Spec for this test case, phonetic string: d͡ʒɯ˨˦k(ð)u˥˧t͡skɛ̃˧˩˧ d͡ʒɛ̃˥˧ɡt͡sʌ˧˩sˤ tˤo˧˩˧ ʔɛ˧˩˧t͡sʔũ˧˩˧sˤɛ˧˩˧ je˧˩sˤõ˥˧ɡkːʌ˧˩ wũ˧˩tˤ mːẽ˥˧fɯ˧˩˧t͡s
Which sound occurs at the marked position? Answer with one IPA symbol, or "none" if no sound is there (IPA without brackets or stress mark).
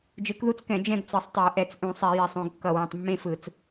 ð